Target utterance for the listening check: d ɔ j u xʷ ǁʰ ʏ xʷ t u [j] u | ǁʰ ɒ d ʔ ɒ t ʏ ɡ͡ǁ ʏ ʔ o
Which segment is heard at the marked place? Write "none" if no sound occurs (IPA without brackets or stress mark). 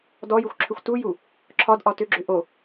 j